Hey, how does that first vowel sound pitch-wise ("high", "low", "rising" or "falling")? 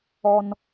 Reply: high